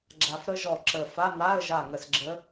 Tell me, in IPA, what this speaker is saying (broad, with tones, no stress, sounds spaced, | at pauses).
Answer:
ɡ͡ǁ a˧ f ɾ ə˥ ʒ ɔ˧˩ ǁ ə˧˩ f a˧˥˧ n̪ a˧˥˧ ə̯ ʒ a˧˩ ŋ ə˧˩ s ɡ͡ǁ ə˧˥